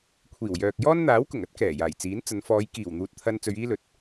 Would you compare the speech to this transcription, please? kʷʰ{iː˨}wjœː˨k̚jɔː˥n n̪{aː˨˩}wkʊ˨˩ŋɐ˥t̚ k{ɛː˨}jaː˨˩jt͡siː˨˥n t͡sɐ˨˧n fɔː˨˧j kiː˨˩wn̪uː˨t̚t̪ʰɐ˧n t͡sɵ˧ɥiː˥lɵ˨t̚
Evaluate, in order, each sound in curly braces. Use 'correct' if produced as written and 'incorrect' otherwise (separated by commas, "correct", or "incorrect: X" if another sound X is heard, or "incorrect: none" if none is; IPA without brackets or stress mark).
incorrect: iː˨˩, incorrect: aː˨˥, incorrect: ɛː˨˩